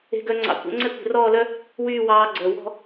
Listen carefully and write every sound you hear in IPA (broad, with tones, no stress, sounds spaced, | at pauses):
e̤˧˥ ɡ œ˧˥ ŋ͡ǀ ɑ̰˧ kʷ ɛ̰˧˥ ŋ͡ǀ ɛ˥ kʷ e̤˧ r ɔː˥˧ l œ˥ | w yː˥˧ w ɑː˧˥ ɡ͡ǀ œ˩˧˩ w ɔ̤˥˧